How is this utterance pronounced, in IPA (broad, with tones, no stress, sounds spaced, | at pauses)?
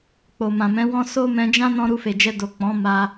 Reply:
k͡p o˨ m ã˨ m ɛ̃˨˦ w ɔ̃˧ s o˦ m ɛ̃˧ d͡ʒ ã˦ n ɔ̃˦ ɾ u˧ f e˨ d͡ʒ ɛ˧ d o˨ k͡p ɔ̃˨˦ m a˧